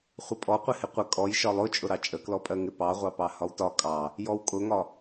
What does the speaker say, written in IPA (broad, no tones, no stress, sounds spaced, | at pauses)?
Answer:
χʷ ə pʼ ɔ qʷ ɪ h ɪ qʷ ə kʼ ɔ j ʃ ɒ lˠ ʊ t͡ʃʼ ʊ ɾ ɑ t͡ʃʼ ə k l ɔ pʼ ɜ ŋ ɪ p ɑ ʁʷ ɑ p ɑ h ɒ w t ɒ kʼ ɑ | j ɔ w kʼ ʊ ŋ ɒ